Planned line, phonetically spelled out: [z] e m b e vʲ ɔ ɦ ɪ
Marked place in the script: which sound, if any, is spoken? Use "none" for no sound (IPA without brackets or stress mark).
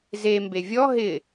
z